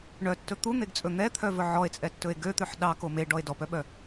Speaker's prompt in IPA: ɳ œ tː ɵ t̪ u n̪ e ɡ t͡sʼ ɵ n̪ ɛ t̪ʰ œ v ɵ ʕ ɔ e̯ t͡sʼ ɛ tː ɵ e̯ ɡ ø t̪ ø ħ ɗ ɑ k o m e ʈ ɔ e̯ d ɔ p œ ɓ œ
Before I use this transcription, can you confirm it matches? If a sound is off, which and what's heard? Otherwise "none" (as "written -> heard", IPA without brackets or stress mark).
ʈ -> ɖ